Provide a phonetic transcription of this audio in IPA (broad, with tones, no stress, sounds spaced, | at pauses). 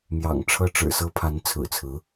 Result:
m j ɑ̰˨˩ ŋ ʈ͡ʂʰ ɤ˥ ʈ͡ʂ ɻ̩˨˩ s ɤ˥ pʰ a˧˥ n t͡sʰ ɹ̩˨˩ t͡sʰ ɹ̩˧˥